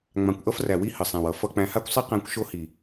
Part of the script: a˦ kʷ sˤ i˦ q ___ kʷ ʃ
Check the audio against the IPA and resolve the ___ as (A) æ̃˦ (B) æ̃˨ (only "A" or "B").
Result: A